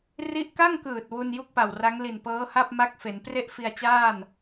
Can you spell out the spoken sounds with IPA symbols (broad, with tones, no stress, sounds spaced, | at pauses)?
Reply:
r i˦˥ ʔ k a˥˩ ŋ k ɯː˨˩ t̚ w u˥˩ n j u˥˩ k̚ p a˨˩ w r a˦˥ ŋ l i˨˩ n p ɤː˦˥ h a˥˩ p̚ m a˥˩ k̚ f e˩˦ n p r e˥˩ ʔ f i˧ a̯ t͡ɕ aː˥˩ n